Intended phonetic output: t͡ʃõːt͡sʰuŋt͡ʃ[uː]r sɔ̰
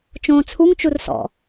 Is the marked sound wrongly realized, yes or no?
yes